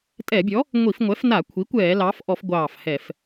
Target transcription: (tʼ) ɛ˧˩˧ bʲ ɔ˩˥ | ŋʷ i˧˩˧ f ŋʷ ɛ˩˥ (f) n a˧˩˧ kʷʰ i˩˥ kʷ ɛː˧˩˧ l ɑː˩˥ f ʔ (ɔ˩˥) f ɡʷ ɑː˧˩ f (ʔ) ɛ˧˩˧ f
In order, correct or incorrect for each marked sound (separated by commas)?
correct, correct, incorrect, incorrect